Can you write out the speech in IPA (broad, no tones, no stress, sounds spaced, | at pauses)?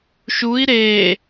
ʃ u i̯ ɾ e